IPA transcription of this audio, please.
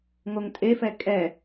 ŋoŋtʼefɛ kʼɛ

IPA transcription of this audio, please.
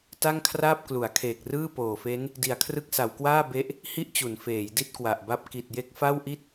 ta˥˩ŋkʰraː˥˩p̚klu˩˦a̯kʰeː˨˩k̚ rɯː˥˩poː˨˩fe˦˥n | di˨˩a̯kʰrɯ˦˥k̚sa˩˦wkwaː˥˩ be˥˩ʔ | hi˥˩ʔt͡ɕu˩˦n feː˩˦jdi˥˩t̚kwa˨˩ʔba˦˥p̚ ki˨˩t̚je˦˥k̚ fa˥˩wʔi˥˩t̚

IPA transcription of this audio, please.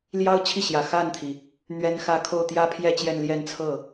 ljɑ˥ʊ̯t͡ɕʰi˥˩ɕjä˨˩ xa˥˩nt̪ʰi˩ | n̪ɥɛ˥nxä˥˧ kʰo˥˩ʊ̯t̪jä˥pʰjɛ˥˧ t͡ɕjɛ˥˧nljɛ˥˧n t͡sʰɤ˥˩

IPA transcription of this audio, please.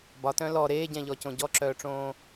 bɒtœ̃ lɔ ɾeːɟɛ̃ʎɔcõ ɟɔǁœːʈ͡ʂõː

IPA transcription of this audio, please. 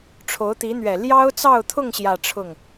ʈ͡ʂʰo˧˥ʊ̯t̪i˧˥n̪ɥɛ˨˩ ljɑ˥ʊ̯t͡sɑ˥˧ʊ̯t̪ʰʊ˥˧ŋ ɕjä˥˧ʈ͡ʂʰʊ˥˩ŋ

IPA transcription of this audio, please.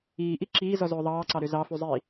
iːʔi ǁiːzɔzɵː ðˤɑːǀɑɾø zɑfuzˤiː

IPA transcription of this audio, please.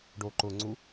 ɖoǃʊŋ͡ǀu

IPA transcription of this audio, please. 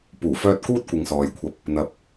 puː˨˩fœː˧t̚ kuː˥t̚kʷɪ˨ŋsɔː˨jkʷʰɐ˧p̚ | n̪ɐ˧p̚

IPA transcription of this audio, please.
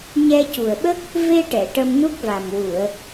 ɲɛ˧cu˨˩ə̯ɓə˦˥k̚ | ve˧ʈɛ˨˩˨ ʈə˧mnu˦˥k̚va˨˩m wu˨˩˨ə̯

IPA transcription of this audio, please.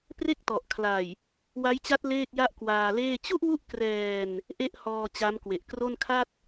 pre˥˩k̚tɔ˨˩ʔkʰla˨˩j | wa˦˥jt͡ɕa˦˥t̚ leː˥˩k̚ja˥˩ʔkwaː˧leː˥˩ t͡ɕu˥˩ʔwu˦˥ʔ krɛː˧n | ʔe˥˩ʔhɔː˧ t͡ɕa˦˥mkwe˨˩ʔkro˥˩n kʰa˥˩t̚

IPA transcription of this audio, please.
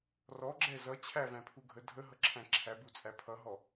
rɔ ɡ͡ǁɛ zʌ t͡ɕʰævæ̃pʰu ɡʱə dʱəɦʌǁʰæ̃ ǁʰæbut͡sʼæ pʰʌɦɔ

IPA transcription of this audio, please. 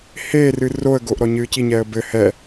heːrɨ roə̯ɡoʔ ɾɔɲɨːciɲɛːə̯ bɘ hɛ

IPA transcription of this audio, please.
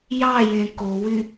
jɑjẽ kowy

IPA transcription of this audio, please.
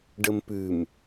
ɖəmpʉm

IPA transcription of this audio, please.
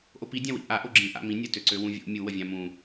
ʔopidʲã wḭʔa ʔoɡ͡ǁĩ ʔa̰mĩ nʲətøǀø wũvʲo̰ mʲu wəvʲãmũ

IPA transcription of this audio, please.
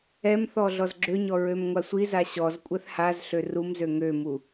ɛmθɔ ɮɔzɡ͡ǁøɲɔ ɹømŋʷasʷiza ɕɔz kʷʼɛθhazɬø rumzø ŋømu

